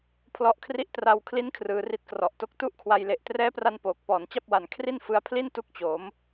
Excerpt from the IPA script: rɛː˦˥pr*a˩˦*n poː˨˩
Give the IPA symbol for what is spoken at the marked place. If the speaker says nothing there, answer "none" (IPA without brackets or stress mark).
a˧